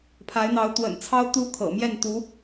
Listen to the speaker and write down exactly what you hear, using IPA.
pʰa˧˥ɪ̯n̪ɑ˧˥ʊ̯ t̪wə̰˨˩nt͡sʰɑ˥ʊ̯ t̪u˥kʰɤ̰˨˩mjɛ˥˩nt̪u˧˥

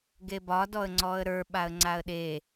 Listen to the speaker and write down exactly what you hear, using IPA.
ɡebɒ dɔə̯ŋ͡ǀɔə̯ɾə˞ ɓaə̯ŋ͡ǀaə̯ɗe

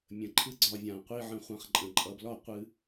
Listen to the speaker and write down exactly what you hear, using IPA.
mʲə̃˨ ǃʰɨ˦ɡ͡ǀɒ˧vʲã˨ qʷi˦ʕə̃˧ χʷã˨˦χǃʼə̃˨ ǃʼʌ˨blɒ˦˨ qʷɨ˧

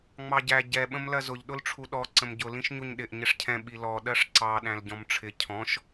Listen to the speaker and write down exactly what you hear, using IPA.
ŋ͡mɑɟæ ɟɛ ɓə̃mlɜzʊʎ ɗʊlʈ͡ʂʰuɗɔ ǀə̃mɟʊ lĩʃɲuɲɗɪʔ ɲɪʂcʰɛ̃ ɓilɔ ɗɜʂǀɑ ɗæ̃lɟɔ̃mʈ͡ʂʰɪ cʰɔ̃ʃ

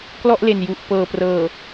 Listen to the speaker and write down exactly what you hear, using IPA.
klɔ˥˩ʔle˨˩n ju˨˩ʔ pɤː˨˩prɤː˨˩

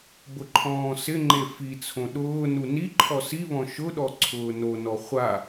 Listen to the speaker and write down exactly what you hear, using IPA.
bʊǃʰɔ̃ːsɪŋ͡ǃe fit͡sʰõ ɗʊː nuniǃʰɔ siβɔ̃ ʃʊɗɔ ǀʰʊːnonɔ χʷa

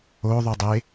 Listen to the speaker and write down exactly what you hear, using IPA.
oðˤudˤe

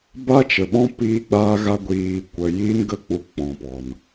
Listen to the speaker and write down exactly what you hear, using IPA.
ba˦t͡ʃə˨ɓɔ̃˦ piː˧ɡ͡baː˧ɣa˧ ɡʷiː˨ kʷə˨jiː˦nɡə˦˨ k͡pu˧k͡pɔ̃˨pɔ˨n

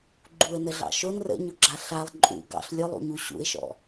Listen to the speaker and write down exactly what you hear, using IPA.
ɡ͡ǃuə̯nəɮɑ̰ ʃon rə̰ɲʊɡ͡ǁa ɬalˠ ǃʼṵ ɡɑ̰ɬ lʲʊlˠṵɲu ɕṵɪ̯ʃɔ̰

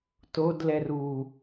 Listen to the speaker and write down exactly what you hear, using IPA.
todlɛr u

